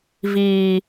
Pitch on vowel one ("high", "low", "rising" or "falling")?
low